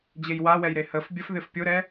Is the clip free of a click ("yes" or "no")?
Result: yes